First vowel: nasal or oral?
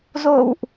oral